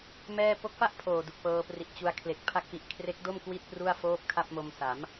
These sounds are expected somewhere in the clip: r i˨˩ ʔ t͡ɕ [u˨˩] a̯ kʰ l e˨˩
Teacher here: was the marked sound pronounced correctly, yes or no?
no